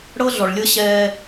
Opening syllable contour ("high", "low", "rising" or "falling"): high